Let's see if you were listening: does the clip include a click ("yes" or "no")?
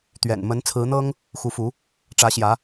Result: no